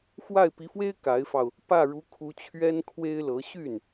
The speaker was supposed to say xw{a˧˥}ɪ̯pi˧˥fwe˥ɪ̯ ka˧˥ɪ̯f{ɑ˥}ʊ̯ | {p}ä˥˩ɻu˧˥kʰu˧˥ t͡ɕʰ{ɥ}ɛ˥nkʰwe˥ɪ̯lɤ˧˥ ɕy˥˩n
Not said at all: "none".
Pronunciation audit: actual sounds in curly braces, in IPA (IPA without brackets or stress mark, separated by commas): a˥˩, ɑ˧, p, ɥ